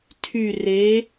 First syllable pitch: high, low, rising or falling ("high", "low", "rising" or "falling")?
low